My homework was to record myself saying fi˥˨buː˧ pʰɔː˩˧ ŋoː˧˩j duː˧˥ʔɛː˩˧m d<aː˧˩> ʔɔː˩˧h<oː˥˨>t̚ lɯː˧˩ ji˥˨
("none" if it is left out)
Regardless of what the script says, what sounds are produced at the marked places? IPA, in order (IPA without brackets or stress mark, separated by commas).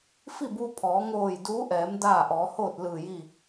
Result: aː˥˨, oː˥˨